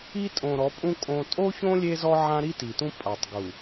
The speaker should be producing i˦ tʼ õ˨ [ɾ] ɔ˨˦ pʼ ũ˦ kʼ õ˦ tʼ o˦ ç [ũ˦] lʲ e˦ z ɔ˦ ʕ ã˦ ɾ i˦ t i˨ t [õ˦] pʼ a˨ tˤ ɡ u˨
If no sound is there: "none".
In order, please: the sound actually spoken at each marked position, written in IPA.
ɾ, õ˦, ũ˦

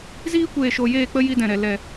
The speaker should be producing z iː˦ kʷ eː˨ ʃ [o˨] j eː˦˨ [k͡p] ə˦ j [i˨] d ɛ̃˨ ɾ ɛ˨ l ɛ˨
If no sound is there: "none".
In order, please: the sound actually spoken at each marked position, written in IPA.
o˨, k͡p, i˦

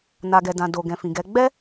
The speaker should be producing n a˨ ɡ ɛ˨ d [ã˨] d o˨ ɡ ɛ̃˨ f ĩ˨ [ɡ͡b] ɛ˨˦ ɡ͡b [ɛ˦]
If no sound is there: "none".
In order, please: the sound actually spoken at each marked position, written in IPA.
ã˨, ɡ, ɛ˦

